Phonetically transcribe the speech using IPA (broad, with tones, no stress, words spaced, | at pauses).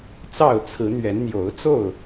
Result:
t͡sɑ˥˨ʊ̯t͡sʰɹ̩˨˦ n̪ɥɛ˨˦nn̪jo˨˦ʊ̯t͡so˥˨ʊ̯